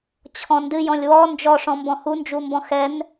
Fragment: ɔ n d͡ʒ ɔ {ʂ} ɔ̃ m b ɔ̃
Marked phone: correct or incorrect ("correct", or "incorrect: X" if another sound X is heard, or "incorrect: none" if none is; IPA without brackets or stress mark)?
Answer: correct